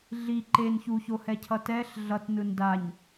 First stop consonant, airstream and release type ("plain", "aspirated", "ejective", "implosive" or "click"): click